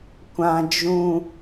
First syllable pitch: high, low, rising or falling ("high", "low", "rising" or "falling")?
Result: high